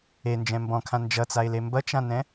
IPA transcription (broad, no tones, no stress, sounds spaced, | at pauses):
e n d͡ʒ ɛ̃ m b ɔ̃ kʰ ã n d͡ʒ ʌ t͡s a ɪ̯ l e m b ʌ t͡ʃ ã n ɛ̃